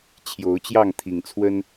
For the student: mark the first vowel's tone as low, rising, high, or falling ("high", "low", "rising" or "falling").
rising